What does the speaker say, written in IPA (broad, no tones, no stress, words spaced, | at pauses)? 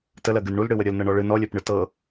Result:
təlɜɡɨn ɳulɽɨwə ɾʲəlnɤɳɔ ɭɨ nɔlʲɜpɳɨ tɤ